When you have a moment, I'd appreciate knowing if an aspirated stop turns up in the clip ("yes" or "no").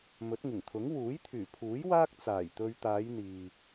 yes